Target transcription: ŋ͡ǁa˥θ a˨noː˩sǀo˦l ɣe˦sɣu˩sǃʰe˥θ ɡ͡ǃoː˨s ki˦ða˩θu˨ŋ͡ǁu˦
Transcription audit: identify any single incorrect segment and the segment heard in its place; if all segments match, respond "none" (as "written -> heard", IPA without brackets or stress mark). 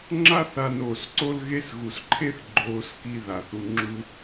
none